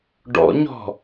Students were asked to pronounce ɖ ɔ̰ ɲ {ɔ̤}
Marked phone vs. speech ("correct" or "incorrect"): correct